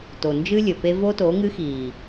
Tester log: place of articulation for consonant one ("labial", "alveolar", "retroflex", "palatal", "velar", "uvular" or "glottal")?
alveolar